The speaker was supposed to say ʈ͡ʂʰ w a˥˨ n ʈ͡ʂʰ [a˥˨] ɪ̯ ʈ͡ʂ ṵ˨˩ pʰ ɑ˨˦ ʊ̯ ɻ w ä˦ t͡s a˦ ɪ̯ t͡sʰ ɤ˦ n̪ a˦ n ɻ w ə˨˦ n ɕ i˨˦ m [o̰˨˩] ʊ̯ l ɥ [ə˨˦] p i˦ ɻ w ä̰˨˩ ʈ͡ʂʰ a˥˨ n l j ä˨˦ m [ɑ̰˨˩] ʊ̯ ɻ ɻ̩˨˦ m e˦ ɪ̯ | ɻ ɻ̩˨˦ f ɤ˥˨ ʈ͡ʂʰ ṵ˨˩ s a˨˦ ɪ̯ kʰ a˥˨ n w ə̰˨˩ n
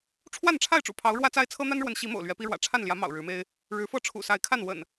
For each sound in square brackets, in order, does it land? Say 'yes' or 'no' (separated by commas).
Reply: yes, yes, no, yes